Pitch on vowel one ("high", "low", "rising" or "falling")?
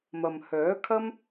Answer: low